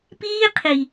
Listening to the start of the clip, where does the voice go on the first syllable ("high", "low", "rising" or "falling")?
high